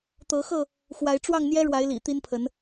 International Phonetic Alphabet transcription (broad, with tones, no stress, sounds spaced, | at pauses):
t̪ ɤ˨˦ x ɤ˥˨ | x w a˨˦ ɪ̯ ʈ͡ʂ w ɑ˥˨ ŋ n̪ j ɛ˦ ɻ w a˨˦ ɪ̯ l ḭ˨˩ t̪ i˦ n pʰ ə˨˦ n